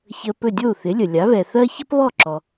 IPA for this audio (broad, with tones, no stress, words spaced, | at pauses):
çə˧pɵ˥˩ dʲo˥˩u̯θɪ˩˥lʲə˩lʲa˩˥ βɛ˩θɜ˥ çə˥pβɔ˥˩ǁɔ˩